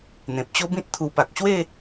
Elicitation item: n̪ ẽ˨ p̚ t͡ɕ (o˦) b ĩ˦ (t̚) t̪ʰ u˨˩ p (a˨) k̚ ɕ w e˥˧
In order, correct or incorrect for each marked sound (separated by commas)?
correct, correct, correct